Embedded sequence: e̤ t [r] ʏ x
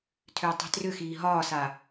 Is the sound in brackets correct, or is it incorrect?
correct